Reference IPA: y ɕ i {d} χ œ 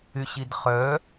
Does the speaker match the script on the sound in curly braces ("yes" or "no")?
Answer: yes